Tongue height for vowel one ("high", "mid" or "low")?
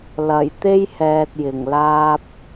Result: low